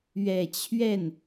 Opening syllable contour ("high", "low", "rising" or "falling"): low